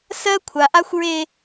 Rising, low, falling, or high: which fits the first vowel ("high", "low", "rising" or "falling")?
high